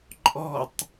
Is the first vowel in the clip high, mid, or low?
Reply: mid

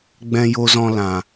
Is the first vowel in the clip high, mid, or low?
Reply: mid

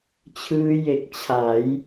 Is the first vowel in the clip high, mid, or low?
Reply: high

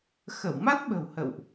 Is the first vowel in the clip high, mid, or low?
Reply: mid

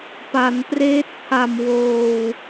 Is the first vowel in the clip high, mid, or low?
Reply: low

